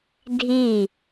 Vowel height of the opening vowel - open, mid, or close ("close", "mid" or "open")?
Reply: close